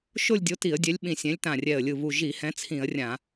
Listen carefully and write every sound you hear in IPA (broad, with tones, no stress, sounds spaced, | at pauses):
ʃ o˥˧ lʲ dʲ o˨˥ t i˧˩˧ ə̯ dʲ ɛ˨˥ lʲ ɓ ĩ˧˩ sʲ ɛ̃˨˥ lʲ t ã˧˩ rʲ ɛ˧˩ ə̯ lʲ ɯ˧˩ β u˧˩ ʒ i˧˩˧ h ɛ̃˨˥ t͡sʰ ĩ˧˩˧ ə̯ rʲ ã˧˩˧